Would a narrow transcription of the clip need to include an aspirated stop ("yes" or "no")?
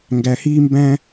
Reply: no